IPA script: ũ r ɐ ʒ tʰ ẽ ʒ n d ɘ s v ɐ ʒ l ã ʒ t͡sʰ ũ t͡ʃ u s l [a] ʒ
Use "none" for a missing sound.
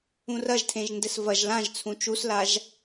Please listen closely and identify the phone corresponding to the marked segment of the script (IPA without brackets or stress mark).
a